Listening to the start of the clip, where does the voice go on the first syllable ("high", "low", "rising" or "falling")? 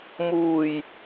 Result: low